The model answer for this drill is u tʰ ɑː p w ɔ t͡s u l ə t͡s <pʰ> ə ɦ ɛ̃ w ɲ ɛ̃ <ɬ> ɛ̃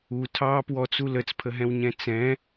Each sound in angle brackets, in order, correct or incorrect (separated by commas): correct, incorrect